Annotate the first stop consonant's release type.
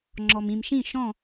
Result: click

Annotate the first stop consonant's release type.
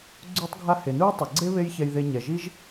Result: click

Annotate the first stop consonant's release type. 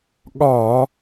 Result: implosive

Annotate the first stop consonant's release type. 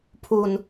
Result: aspirated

